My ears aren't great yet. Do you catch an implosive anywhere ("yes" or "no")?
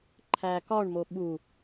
yes